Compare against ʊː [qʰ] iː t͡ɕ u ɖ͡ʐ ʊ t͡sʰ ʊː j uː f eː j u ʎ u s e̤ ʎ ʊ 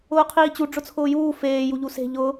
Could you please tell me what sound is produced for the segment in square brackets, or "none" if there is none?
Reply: qʰ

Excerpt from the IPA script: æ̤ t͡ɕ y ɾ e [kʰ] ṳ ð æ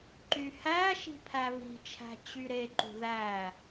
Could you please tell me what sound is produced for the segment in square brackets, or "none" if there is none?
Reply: ǃ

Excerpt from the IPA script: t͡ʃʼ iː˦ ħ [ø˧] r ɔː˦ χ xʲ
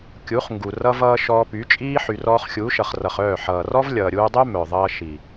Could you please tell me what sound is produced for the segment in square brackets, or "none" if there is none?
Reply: y˧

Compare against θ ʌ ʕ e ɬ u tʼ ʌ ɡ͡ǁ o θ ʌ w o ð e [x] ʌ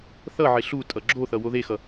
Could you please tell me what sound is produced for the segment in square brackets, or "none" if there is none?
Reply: x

